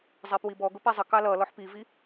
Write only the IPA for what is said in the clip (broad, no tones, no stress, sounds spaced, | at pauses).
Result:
zˤ ɛ p w i b ɔ ɡ ʊ p ɛ zˤ ə k ɑ l ʌ l ɔ ħ p i v i